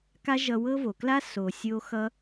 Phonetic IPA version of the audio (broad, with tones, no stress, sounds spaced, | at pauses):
k a˦ ʒ ʌ˧ w ɤ˦ v o˨ k l a˦ s o˨ sʲ o˧ x ʌ˦